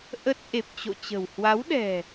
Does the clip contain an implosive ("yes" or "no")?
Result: yes